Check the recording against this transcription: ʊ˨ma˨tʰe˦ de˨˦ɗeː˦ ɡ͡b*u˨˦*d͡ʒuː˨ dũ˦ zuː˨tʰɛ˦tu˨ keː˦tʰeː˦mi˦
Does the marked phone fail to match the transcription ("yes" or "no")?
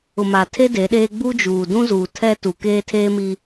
yes